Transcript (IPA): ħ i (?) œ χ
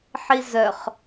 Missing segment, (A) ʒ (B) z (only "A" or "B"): B